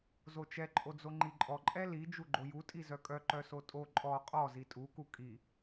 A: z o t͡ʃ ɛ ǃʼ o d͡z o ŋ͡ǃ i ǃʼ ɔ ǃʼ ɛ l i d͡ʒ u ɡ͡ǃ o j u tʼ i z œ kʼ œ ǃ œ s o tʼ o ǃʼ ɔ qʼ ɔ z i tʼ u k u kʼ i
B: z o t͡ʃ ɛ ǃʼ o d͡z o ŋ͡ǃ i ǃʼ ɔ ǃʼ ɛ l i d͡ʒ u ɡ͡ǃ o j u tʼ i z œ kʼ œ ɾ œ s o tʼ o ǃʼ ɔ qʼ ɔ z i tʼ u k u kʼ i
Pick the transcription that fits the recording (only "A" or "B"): A